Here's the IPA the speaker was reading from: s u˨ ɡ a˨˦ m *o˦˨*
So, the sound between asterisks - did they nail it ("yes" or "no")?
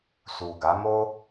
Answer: no